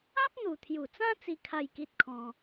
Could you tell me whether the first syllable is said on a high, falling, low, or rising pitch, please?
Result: high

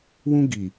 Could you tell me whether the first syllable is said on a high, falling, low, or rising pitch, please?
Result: high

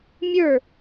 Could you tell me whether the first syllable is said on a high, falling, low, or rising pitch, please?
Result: falling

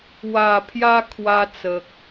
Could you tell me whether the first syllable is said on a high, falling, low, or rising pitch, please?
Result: low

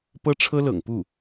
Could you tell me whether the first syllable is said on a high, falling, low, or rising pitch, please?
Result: high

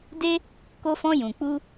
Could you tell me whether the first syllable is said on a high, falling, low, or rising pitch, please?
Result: high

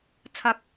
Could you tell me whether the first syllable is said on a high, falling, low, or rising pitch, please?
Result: low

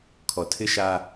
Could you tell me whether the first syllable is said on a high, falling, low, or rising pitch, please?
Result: low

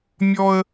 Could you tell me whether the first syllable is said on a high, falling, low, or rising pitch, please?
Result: high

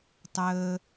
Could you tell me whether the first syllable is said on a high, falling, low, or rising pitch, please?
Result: low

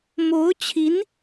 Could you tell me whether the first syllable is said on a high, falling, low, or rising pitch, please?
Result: rising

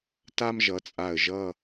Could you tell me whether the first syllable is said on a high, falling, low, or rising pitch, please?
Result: high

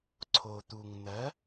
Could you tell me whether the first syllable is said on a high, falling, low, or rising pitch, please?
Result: low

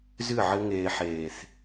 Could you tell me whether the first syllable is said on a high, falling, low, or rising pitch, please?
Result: falling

